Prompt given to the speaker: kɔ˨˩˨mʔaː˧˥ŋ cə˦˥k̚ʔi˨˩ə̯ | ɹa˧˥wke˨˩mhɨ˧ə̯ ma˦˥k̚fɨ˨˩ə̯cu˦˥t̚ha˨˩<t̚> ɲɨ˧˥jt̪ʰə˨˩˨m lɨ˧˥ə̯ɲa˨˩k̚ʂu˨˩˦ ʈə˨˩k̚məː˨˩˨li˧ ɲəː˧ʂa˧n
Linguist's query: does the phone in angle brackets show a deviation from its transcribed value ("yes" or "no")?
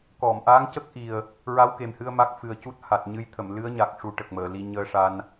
no